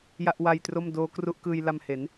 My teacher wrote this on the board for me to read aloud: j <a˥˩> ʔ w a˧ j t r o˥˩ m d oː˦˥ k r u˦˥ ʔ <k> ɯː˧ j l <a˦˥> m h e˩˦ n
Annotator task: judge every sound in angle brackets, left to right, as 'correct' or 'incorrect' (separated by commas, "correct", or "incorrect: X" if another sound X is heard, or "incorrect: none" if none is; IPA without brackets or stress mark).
correct, correct, incorrect: a˧